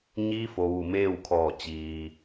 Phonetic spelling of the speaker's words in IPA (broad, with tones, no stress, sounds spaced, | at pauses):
ɲ iː˧˥ f o˩ ʋ u˧˩ m eː˥˨ w kʰ ɔː˧˩ t͡ɕ iː˩